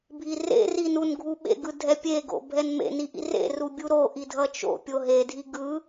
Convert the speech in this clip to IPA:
bʱirḛri nunɡʱuɓḛɡɯ dʱɛpʲeɡo̰ bʱɛnmḛni ʔḭrḛru bʲuɾoʔi dʱʌt͡ʃo̰pʲo ɦedʱi ɡɯ

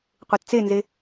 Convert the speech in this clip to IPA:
qʷett͡senze

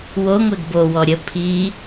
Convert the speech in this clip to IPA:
wo ŋʷɛɡbo wɔɾʲə pʰi

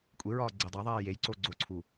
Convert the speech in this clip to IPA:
kʷʼeɹɒː ɡ͡ǀedˤæðˤeː jejǀo ɡ͡ǀoǀʰu

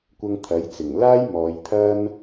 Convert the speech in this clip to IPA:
kʷɐ˧ŋ t̪ʰɐ˨˥jt͡sɪ˨˩ŋ laː˥j mɔː˨˧jt̪ʰɐ˥n

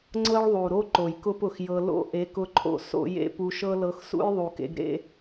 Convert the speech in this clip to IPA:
ŋ͡ǀɤ˦ɭðˤu˨ɾo˦ ǃo˨jkʊ˦p ʊ˨xjɤ˧ lo̰˦ʔe˨˦kʊ˧ǃʰo̰˧ so̰˦jḛ˦ pu˧ʃɤ˦lɤ˧x sṵ˦jðˤu˨kḛ˧ɡ ɾḛ˦

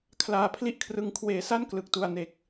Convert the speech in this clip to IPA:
kʰlaː˧pʰli˥˩ʔkʰrɯ˧ŋ kʰweː˩˦sa˥˩n klɯ˨˩k̚tu˨˩a̯ne˨˩k̚

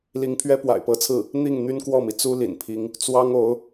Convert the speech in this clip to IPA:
li˧˥ŋpʰɥɛ˥ pwa̰˨˩ɪ̯pɤ˧˥t͡sʰɹ̩˥˩ | n̪i˥˩ŋ n̪y˥nkwɔ˥˩mi˩ t͡su˥ lḭ˨˩npʰi˧˥ŋ | t͡swɑ˥ŋo˧˥ʊ̯

